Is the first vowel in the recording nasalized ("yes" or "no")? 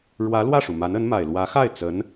no